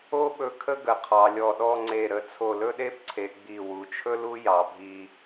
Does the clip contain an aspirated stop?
yes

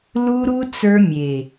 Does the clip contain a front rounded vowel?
no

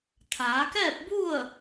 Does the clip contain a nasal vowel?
no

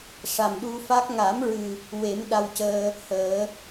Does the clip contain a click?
no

